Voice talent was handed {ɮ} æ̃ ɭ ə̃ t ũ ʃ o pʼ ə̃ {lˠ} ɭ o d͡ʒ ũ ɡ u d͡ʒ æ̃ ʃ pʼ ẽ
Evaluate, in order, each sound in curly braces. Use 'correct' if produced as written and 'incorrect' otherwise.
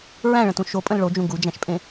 incorrect: ɹ, incorrect: l

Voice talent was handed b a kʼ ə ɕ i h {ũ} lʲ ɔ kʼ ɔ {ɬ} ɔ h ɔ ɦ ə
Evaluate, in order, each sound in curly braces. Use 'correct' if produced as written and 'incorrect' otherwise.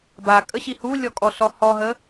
incorrect: u, correct

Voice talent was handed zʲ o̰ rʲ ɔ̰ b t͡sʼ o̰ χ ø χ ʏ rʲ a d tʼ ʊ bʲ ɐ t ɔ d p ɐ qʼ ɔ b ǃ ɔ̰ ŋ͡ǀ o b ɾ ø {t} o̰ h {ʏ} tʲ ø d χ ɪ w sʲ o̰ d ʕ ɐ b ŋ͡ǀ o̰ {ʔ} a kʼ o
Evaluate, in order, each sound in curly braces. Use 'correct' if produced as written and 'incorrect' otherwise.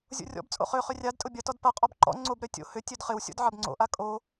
incorrect: tʲ, correct, correct

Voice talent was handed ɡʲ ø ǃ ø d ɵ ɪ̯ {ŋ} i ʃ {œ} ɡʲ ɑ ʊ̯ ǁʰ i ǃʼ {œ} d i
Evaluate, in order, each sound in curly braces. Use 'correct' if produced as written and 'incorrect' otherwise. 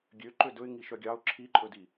correct, correct, incorrect: ɵ

